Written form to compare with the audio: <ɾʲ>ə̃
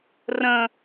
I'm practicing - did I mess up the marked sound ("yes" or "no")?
yes